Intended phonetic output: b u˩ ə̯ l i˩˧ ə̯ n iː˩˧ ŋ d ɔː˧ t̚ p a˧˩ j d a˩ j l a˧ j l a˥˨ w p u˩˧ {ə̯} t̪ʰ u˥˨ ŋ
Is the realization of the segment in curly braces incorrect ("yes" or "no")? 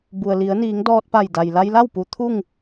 yes